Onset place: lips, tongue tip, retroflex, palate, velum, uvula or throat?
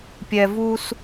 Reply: lips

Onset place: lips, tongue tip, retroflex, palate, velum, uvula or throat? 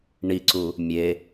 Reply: retroflex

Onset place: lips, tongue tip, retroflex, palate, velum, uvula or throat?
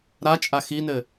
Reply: tongue tip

